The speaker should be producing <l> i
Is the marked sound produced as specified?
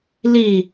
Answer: yes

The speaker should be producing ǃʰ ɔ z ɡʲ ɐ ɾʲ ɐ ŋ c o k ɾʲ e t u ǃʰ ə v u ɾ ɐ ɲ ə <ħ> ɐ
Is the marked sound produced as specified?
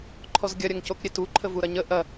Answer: no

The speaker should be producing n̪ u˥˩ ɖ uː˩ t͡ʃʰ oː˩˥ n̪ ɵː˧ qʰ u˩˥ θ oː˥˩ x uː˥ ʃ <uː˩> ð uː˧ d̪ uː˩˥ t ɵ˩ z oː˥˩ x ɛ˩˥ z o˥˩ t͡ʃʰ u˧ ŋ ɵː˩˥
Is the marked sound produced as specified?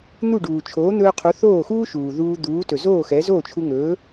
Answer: yes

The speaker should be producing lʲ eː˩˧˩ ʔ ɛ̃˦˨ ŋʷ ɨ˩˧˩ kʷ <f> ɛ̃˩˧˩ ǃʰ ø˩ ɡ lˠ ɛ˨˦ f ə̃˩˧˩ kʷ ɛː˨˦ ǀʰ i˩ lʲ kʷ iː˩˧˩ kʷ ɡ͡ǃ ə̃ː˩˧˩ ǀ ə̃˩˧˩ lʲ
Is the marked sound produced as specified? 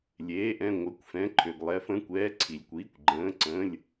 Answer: yes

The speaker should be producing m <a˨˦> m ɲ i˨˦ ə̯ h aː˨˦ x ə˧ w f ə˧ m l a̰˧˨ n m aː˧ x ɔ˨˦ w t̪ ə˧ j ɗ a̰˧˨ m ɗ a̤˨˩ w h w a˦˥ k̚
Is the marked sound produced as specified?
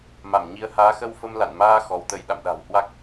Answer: no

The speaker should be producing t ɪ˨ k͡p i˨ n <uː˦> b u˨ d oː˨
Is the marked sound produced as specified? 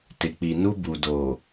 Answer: no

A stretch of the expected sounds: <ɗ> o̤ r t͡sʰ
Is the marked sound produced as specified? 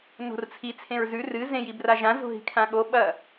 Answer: no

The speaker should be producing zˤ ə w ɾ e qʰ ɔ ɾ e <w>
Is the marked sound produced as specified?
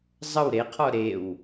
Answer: yes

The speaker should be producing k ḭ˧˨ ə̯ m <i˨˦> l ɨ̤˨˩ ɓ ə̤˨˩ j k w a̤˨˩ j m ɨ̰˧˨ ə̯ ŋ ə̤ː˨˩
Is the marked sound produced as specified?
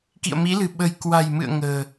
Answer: yes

